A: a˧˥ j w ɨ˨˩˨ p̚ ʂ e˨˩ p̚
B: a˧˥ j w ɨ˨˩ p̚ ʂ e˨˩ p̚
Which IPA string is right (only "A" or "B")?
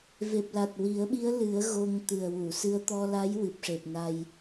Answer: B